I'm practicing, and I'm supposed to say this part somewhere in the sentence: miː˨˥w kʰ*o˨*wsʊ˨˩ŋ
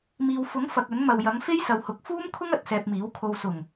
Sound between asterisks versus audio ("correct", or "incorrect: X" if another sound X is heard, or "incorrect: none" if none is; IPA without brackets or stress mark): correct